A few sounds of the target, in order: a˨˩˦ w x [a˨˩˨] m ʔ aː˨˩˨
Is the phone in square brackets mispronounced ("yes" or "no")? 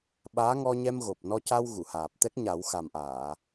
yes